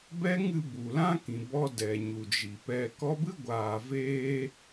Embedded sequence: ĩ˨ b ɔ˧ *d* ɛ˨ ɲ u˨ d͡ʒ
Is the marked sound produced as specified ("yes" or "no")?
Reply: yes